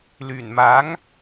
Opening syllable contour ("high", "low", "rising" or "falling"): low